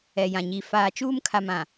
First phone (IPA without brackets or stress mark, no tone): ɛ